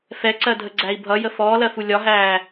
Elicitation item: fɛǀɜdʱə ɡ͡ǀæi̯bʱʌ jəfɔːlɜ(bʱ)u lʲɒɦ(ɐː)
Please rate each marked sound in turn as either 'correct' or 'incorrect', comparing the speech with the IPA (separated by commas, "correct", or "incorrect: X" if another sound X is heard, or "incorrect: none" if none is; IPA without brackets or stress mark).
incorrect: f, incorrect: æː